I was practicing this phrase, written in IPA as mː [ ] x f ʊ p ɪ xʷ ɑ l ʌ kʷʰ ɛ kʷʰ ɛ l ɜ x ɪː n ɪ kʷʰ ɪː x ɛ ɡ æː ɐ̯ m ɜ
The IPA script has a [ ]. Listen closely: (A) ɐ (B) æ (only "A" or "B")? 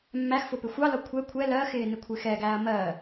B